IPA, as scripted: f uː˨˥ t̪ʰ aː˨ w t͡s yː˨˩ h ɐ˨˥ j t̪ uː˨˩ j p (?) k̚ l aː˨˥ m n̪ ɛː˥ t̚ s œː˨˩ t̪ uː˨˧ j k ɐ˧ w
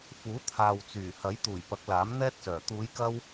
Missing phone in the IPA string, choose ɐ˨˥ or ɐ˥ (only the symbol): ɐ˨˥